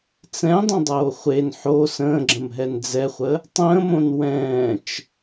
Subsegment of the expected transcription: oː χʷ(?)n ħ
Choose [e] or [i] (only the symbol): e